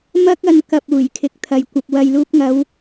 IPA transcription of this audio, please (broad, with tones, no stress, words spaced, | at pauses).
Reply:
mɐ˥k̚ ɐ˧nkɐ˨p̚ uː˨˩j kʰɪ˨˥k̚t̪ʰɐ˨jkʷɐ˧p̚ wɐ˨jluː˧p̚ŋɐ˨˧w